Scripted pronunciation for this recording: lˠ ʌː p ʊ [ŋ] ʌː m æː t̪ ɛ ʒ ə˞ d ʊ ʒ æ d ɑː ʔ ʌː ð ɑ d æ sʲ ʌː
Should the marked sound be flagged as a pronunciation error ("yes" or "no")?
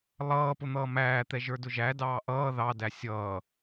yes